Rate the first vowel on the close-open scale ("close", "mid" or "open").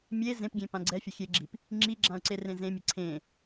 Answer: mid